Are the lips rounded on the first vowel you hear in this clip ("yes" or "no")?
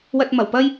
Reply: no